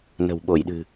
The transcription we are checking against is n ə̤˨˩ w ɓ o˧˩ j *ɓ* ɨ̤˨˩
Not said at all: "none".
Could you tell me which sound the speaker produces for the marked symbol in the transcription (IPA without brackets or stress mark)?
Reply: ɗ